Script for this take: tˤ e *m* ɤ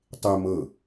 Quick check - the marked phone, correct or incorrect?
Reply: correct